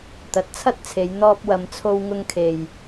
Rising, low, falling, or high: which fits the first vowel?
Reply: rising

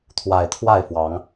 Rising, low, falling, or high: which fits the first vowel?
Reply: low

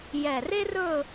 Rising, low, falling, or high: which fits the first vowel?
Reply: low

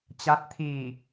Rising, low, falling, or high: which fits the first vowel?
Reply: rising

